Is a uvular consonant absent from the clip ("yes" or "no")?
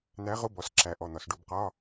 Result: no